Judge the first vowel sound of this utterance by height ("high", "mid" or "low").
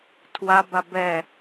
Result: low